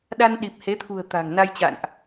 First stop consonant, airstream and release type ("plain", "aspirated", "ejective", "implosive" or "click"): implosive